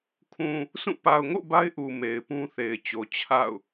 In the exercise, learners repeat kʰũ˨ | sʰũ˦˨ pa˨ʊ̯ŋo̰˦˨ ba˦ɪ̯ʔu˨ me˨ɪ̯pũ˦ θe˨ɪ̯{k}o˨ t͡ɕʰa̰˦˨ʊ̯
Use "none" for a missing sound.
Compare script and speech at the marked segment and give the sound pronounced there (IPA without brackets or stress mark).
t͡ɕ